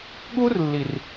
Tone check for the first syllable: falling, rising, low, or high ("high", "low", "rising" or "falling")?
high